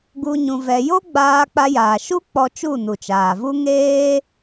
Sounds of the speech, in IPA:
ɡ u˧ ɲ ũ˧ v ɛ˧ j o˦ ɡ͡b aː˧ k͡p a˧ j aː˨ ʃ u˦ k͡p ɔ˧ t͡ʃ u˦˨ n u˨ t͡ʃ aː˨ v u˦ ŋ eː˦

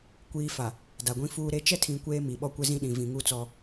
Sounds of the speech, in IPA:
kʷ iː˨ f a˨ | d a˨ ɡʷ ĩ˦ f uː˦ ɾ e˦ t͡ʃ ɛ˦ tʰ ĩ˨ kʷ eː˦ m i˨ ɓ ɔ˦ kʷ ɪ˦ z ĩ˦ ɗ ĩ˨ v ĩ˨ ŋ u˦˨ t͡s ɔ˦

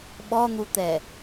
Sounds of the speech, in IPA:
ɓ ɔ n̪ u t̪ ɛ

